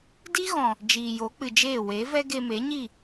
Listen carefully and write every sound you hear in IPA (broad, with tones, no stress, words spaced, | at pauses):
di˦ɣɔ̃˨ | d͡ʒiː˨jo˨˦k͡pɨ˨d͡ʒeː˦˨ we˨˦vɛ˦ ɡe˧me˨˦ɲi˦˨